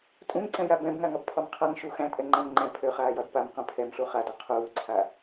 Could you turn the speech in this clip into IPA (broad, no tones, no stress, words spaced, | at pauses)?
tʼũŋǀɛ̃ja bɛ̃bŋaŋɒbpʰɒm qʰaŋ ʃu xæ̃tʼɛŋ͡ǃæ̃m ŋ͡ǃɛ̃ pʰøχaːjɒd pamqũ pʰɛmɬu χadɒ qʰuːǀʰa